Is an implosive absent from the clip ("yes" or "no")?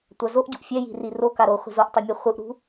yes